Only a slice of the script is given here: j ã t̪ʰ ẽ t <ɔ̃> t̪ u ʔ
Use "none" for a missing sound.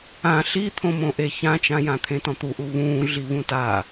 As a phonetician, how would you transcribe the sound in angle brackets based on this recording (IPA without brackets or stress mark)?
ɔ̃